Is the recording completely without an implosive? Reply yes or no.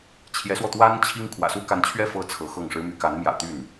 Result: yes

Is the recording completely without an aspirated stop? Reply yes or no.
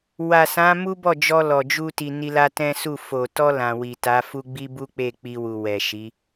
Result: yes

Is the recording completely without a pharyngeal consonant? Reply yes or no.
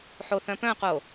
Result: no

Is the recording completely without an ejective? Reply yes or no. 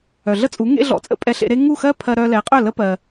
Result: no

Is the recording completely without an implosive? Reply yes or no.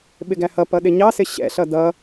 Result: no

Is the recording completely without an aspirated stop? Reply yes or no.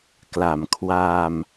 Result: no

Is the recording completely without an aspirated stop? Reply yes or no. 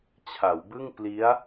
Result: no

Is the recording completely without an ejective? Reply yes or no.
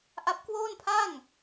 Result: yes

